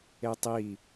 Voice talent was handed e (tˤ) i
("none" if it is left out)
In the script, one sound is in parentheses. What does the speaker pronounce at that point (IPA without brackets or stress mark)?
tˤ